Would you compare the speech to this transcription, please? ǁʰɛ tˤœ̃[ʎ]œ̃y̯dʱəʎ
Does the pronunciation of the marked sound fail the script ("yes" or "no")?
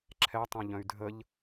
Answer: no